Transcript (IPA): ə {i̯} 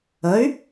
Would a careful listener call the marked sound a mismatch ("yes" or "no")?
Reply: yes